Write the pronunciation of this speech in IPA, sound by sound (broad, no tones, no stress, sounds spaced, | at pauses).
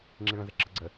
ŋ͡ǁ i ɭ ə̃ z ɘ ǁ ə ɡ͡ǀ ə